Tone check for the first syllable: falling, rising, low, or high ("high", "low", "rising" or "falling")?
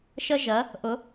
high